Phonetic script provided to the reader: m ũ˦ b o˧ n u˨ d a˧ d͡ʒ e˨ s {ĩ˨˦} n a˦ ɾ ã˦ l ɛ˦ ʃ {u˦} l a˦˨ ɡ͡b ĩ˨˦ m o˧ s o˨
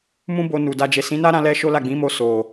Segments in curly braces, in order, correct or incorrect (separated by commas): correct, incorrect